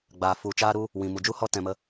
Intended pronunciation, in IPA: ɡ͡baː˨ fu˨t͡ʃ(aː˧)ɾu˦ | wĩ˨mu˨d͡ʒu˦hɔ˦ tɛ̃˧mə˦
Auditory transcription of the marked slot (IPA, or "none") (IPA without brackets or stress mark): aː˦